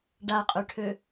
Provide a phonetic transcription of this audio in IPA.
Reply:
ɖ a qʼ ø ʈʰ ø

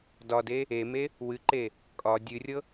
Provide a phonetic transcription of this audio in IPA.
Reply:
d ɒ d e | e m e | w ɨ ǃ e | kʼ ɒ dʲ ɨ rʲ ɤ

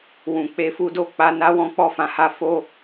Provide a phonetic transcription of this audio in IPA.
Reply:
w ũ˨ k͡p e˧ f u˦ d o˦˨ k͡p a˧ n a˦ w ɔ̃˦ k͡p ɔ˦˨ f ã˨˦ h a˧ f o˧

